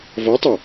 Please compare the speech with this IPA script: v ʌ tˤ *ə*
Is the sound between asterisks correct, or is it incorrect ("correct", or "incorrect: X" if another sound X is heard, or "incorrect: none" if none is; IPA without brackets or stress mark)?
correct